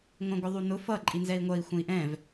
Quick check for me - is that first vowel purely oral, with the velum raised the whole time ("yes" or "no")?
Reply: no